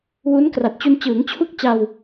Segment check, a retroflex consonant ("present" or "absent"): absent